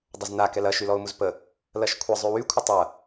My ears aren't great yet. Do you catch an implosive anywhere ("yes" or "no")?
no